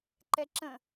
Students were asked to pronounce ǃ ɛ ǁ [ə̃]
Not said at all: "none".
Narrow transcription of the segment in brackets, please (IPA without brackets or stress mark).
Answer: ə̃